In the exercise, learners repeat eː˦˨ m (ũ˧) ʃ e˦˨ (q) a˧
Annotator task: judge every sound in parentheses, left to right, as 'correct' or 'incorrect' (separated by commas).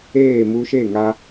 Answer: incorrect, incorrect